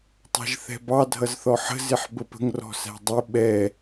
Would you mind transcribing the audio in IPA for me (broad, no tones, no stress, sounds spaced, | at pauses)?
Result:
tˤ ɑ̤ ʒ θ ɛ̤ b ɑ dʱ ʌ z θ ɔ ħ ə̤ z ɪ ħ b ə p ə̤ ŋ r ɔ̤ s æ̤ dˤ ɪ ɓ ɛ